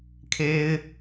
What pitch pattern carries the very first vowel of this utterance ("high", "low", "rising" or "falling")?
high